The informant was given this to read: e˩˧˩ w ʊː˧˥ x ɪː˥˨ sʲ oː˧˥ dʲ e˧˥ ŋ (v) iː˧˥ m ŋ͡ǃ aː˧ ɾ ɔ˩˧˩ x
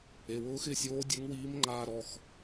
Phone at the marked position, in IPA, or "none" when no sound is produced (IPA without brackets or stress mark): w